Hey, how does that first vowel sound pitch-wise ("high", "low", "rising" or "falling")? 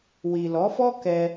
low